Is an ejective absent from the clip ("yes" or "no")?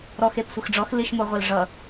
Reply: yes